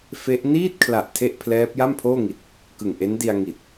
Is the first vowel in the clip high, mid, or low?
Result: mid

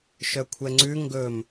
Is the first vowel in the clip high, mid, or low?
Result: mid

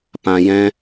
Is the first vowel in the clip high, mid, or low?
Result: low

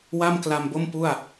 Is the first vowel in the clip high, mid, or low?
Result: low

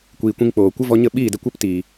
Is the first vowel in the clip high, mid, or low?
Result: high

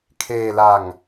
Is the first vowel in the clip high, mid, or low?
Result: mid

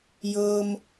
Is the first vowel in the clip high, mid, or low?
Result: mid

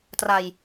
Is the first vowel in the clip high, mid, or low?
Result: low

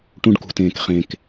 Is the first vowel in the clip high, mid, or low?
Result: high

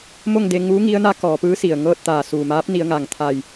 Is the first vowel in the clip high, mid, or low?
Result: mid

